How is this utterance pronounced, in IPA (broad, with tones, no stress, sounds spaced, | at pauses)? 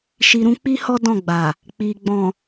ʃ i˨ ɾ ũ˧ k͡p i˦ h ɔ˦ d ɔ̃˦˨ ɡ͡b a˨ | k͡p i˨ ɡ͡b ɔ̃˨